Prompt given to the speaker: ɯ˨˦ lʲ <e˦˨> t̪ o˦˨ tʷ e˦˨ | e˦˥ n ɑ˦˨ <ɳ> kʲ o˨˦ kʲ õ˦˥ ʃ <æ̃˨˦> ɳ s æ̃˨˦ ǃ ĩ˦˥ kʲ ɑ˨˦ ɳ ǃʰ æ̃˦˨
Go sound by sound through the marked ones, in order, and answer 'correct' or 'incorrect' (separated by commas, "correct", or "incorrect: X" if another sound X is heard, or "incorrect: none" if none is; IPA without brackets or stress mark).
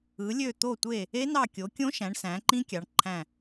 incorrect: ø˦˨, incorrect: none, correct